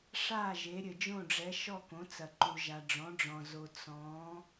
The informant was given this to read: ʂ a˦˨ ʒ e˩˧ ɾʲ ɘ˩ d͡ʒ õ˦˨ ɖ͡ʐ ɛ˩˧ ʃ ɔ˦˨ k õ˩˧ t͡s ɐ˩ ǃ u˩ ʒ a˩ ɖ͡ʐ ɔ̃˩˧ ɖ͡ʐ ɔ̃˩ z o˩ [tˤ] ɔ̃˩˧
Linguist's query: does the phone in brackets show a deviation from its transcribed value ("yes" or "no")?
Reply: yes